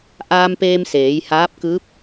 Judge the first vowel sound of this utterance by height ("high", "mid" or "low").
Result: low